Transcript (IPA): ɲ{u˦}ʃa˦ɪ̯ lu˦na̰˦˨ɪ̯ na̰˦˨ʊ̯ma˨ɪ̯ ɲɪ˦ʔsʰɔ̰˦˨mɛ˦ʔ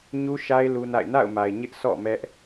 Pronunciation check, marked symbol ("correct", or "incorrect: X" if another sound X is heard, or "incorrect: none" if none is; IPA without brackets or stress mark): correct